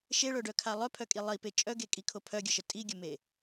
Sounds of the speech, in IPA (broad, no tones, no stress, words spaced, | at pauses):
ʃeɭœɖœkʰa lˠœpʰœkʼi lˠipe t͡ʃʼœɡekʼikʰo pʰœɡʲəʃə tʼiɡʲəme